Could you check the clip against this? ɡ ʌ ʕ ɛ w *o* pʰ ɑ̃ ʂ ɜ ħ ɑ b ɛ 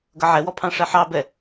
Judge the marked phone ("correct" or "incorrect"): incorrect